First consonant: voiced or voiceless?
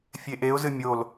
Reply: voiceless